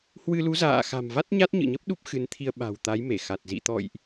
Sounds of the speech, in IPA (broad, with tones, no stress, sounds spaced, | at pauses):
h w ɨ˧ l u˨˦ z a̰ː˧˨ x a̤˨˩ m v a˦˥ t̚ ɲ a˦˥ t̚ ɲ ɨ̰˧˨ ɲ ə˦˥ p̚ ɗ u˦˥ p̚ x ɨ˨˦ n t̪ʰ i˧ ə̯ ɓ a̤˨˩ w t̪ a˨˦ j m e˧˩ x a˨˩ t̚ z ḭ˧˨ t̪ ɔ̰˧˨ j ʔ